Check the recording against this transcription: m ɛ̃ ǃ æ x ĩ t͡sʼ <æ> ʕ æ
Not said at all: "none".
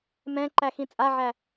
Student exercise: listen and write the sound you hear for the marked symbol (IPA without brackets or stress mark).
a